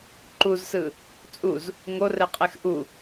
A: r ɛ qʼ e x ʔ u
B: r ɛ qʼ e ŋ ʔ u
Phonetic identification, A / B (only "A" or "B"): A